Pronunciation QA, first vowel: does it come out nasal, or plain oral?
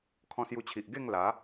nasal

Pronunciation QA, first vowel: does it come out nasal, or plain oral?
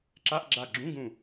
oral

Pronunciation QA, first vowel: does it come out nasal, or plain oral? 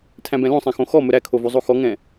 nasal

